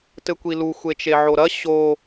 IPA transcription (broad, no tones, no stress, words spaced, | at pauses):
tɘkʷilu xʷet͡ʃeʕoɾɐ ɕo